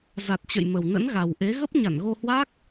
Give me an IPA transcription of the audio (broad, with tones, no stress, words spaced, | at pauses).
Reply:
za˨˩t̚t͡ɕə̰˧˨j mə˨˩wnə̰˧˥nɣa˨˩wʔe˨˦ ɣə˦˥p̚ɲa˧˩nɣo˧hwa˦˥k̚